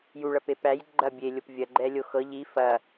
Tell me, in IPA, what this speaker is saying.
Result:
juɭɐ pepæj ɡ͡ǃɐ bʲelʲop vʲɐɡ͡ǃɛlʲo xɤ ʎi fɐ

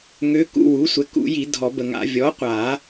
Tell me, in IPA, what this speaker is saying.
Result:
ŋø˧˥kṵ˧˥˧ wu˩˥sʷɛ˩˥ kṵ˨˩˦ji˨˩˦ dʱɔ˨˩˦bə˨ŋa̰˨˩˦ vʲɔ˩˥qʷa˨˩˦

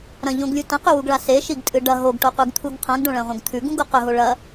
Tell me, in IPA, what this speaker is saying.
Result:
ɾɐ̃ʎõɡlʲu tɐ̃qʉwuɡɭa seʃiɡtʼɨ ɖɐ ɦoɡʈoqʷeɡt̪ʰuɡ qʰãɡɖõɭɐ̃ʁʷɐ̃ɡ t̪ʰʉɡũɡo qɵɦo ɭɐ

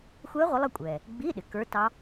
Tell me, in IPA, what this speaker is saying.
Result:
xʷɛː˦˥ʁʷə˨˦lˠʌ˦˨kʷʼɛː˩ | ɡ͡biː˧˥˧ɗɪ˩ kə˞˦˥tɑ˦˥

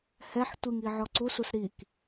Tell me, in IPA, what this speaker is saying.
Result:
hɛħ tʷiŋi ʕɔǀusus ɾik

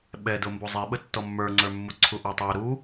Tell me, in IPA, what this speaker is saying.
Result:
ɓɛdʊ mbuzˤiɓə tːɔmːə˞ŋ͡ǀə˞mːu ǀʰuʔɔtˤæ ɾu

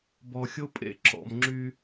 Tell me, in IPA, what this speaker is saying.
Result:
bɔ˨xʲo˦pʼḛ˦ ǁɔ̰˨mŋ͡ǁy˦

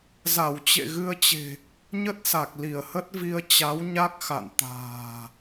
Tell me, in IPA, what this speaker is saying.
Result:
za˧˩wt͡ɕḛ˧˨ɣɨ˧ə̯t͡ɕe̤˨˩ | ɲə˦˥t̚sa˨˩k̚ li˧˩ə̯hə˦˥t̚vi˧ə̯ t͡ɕa˨˦wɲa˦˥k̚ xa̰˧˨n t̪a̤ː˨˩

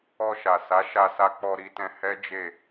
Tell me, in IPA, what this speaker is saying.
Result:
ɔ˧ʃa˨sa˨˦ ʃa˧sa˧ k͡pɔ˧ɾi˧tɛ̃˧ hɛ˦d͡ʒe˦˨

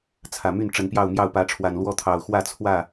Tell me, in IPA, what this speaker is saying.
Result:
t͡sʰä˨˩my˥˨n ʈ͡ʂə˨˦npjɑ˥˨ʊ̯mjɑ˥˨ʊ̯ pä˨˦ʈ͡ʂʰwa˨˩nlwɔ˥˨t̪ʰɑ˨˩ʊ̯ xwä˥˨t͡sʰwä˥˨

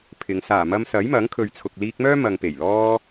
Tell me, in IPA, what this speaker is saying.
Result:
pʰɪ˨˧ŋ saː˨˩ mɐ˧msɐ˨˥jmɐ˨˥ŋ kʰɵ˨ɥt͡sʰʊ˨k̚liː˧k̚mœː˥ mɐ˨ŋpe˨˩jlɔː˧

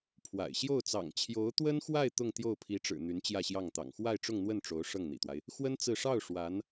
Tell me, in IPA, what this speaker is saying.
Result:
pʰwa̰˨˩ɪ̯ ɕjo˥˩ʊ̯t͡sɑ̰˨˩ŋ t͡ɕʰjo˧˥ʊ̯t̪wə˥nxwa˥˧ɪ̯ t̪ʊ˥˧ŋt̪jo˥˩ʊ̯pʰi˧˥ʈ͡ʂɻ̩˨˩ n̪y˧˥n t͡ɕjä˥˧ɕjɑ˥˩ŋt̪ɑ̰˨˩ŋ xwa˥˧ɪ̯ʈ͡ʂʊ˥˧ŋn̪wə˥˩n ʈ͡ʂo˧˥ʊ̯ ʂɤ˥˩ŋn̪ḭ˨˩t̪wa˦ɪ̯ | xwə˥n t͡sɹ̩˥˧ ʂɑ˥˩ʊ̯ ʂwa˧˥n

